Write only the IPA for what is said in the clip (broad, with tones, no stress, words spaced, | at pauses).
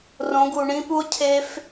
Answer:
rõ˨˦ɡu˨ ɳĩ˦pu˦o̯ cʰe˦f